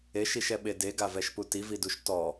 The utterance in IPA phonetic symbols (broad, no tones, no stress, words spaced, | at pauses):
eʃiʃɛɓe deɡavɛʃpu tividuʃ tɔ